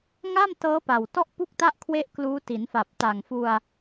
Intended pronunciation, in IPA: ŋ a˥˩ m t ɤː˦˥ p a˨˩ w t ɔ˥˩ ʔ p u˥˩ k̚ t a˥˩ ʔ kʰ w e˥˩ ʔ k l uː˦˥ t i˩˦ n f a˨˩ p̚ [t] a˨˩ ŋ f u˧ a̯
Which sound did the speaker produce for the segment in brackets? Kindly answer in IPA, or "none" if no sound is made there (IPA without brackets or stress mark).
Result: t